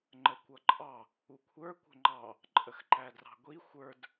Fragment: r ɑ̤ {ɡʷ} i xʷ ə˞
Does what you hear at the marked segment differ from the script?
no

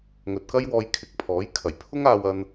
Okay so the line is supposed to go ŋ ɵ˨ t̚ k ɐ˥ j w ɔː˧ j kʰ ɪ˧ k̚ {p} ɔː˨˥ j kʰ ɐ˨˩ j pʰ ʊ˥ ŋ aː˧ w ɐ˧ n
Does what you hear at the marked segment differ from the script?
yes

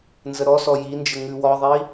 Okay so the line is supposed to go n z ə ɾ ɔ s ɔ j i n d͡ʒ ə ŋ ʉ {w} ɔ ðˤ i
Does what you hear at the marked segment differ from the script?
no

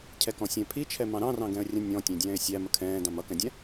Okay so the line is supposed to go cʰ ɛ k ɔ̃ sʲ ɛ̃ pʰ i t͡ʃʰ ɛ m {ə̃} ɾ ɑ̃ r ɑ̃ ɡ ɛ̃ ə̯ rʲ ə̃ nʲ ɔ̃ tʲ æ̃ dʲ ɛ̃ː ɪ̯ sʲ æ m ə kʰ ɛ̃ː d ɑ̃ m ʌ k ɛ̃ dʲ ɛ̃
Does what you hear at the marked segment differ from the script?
yes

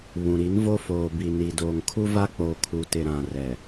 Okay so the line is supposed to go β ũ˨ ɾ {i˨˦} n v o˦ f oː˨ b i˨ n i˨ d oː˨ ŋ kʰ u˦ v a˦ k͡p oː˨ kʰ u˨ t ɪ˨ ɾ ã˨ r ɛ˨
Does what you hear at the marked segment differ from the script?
no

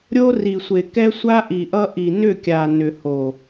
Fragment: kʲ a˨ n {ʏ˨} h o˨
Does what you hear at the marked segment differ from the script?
no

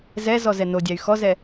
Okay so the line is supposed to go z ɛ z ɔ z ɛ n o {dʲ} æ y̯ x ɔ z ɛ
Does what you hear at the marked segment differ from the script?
no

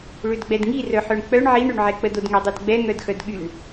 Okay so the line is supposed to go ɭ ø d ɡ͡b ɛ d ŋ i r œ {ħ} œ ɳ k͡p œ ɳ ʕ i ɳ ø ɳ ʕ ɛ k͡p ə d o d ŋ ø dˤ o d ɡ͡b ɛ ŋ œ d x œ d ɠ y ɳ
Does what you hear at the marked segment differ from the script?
no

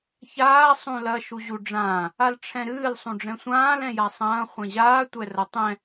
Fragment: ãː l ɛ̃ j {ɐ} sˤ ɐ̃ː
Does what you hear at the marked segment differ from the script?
yes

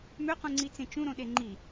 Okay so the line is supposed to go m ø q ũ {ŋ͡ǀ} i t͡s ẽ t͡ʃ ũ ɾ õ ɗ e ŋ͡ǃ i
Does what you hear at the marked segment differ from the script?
no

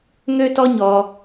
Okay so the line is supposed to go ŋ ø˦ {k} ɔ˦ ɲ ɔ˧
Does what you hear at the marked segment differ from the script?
yes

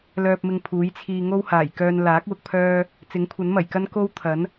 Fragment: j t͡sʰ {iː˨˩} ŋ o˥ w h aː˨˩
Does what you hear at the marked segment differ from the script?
yes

